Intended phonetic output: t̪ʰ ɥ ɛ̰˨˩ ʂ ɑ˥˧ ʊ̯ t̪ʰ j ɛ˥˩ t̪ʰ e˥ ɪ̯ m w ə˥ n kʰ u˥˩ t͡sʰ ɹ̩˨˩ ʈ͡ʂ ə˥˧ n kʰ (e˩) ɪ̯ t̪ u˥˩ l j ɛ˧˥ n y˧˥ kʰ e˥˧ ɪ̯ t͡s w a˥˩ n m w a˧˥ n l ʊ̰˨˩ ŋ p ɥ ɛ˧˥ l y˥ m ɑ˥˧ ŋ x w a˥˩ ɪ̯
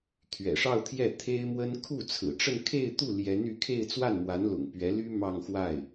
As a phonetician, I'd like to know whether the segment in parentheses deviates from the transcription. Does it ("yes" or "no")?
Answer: yes